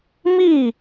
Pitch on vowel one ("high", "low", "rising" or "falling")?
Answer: falling